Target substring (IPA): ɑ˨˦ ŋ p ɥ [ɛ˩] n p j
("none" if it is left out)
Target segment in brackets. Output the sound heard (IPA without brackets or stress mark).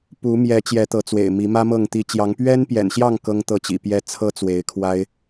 ɛ˦